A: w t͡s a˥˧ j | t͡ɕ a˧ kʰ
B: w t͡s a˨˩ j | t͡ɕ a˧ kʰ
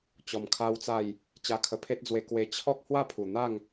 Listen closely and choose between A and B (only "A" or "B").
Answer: A